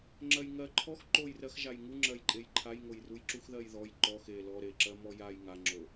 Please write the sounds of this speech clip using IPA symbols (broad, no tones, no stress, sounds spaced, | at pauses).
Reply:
ŋ͡ǁ ɜ j ŋ ɜ ǃʰ ɔ x ǃ o j r ɜ x ʒ a j ŋ u ŋ͡ǁ ɜ j ǃʼ e j ǃʰ a j ŋ o j r u j ǁ u x ð ɜ j ð ɔ j ǃ ɔ x e l ɔ ɾ e ǁ ɜ m ɔ j a j ŋ a ŋ͡ǁ o